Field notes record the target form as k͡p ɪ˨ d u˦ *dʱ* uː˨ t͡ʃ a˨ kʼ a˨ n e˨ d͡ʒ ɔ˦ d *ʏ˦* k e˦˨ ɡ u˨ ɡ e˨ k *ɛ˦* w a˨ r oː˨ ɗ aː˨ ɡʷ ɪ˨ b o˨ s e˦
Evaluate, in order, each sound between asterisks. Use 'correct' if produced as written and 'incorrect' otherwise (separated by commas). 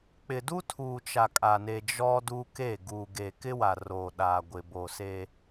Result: incorrect, incorrect, incorrect